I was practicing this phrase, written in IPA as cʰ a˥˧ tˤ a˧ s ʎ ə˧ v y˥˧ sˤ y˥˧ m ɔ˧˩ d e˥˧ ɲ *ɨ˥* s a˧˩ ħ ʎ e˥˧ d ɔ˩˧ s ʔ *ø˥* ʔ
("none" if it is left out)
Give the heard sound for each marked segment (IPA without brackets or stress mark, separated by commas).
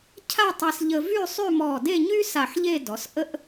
y˥, ə˥